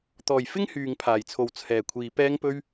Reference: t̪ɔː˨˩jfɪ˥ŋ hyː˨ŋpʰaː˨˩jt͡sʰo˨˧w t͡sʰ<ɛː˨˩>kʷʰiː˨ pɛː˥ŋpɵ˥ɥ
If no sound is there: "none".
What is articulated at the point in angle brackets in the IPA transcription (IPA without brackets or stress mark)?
ɛː˨˩